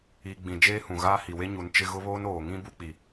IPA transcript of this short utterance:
iː˨ ɡ͡b ĩ˨ d͡ʒ eː˦ h ũ˨ ɣ aː˦ h i˨ w e˦ ɲ u˨˦ n t͡ʃ ɪ˦ ɣ ʊ˦ β oː˦ n oː˨ ŋ ĩ˦ b u˦ k͡p i˨

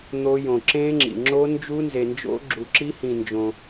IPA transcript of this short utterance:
n̪ o˦˥ j õ˧ ǁ ẽ˦˥ ŋ͡ǁ ḭ˧ ŋ͡ǁ o˦˥ n d͡ʒ u˦˥ n z e˧ n d͡ʒ o̰˦˥ ɡ͡ǁ u˧ ǁ i˦˥ h ĩ˧ n d͡ʒ õ˧

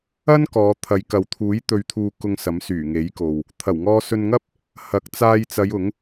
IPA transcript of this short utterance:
ɐ˥ n k ɔː˨˧ t̪ʰ ɐ˨˧ j k ɐ˨ w t̪ʰ uː˨˥ j t̪ ɵ˧ ɥ t̪ʰ uː˧ k ʊ˧ ŋ s ɐ˨˥ m s yː˨˩ ŋ e˨˥ j k o˨ w | t̪ʰ ɐ˨˩ w ŋ ɔː˧ s ɵ˧ n ŋ ɐ˥ p̚ | h ɐ˨˥ k̚ t͡s aː˧ j t͡s ɐ˨˧ j ʊ˨˥ ŋ

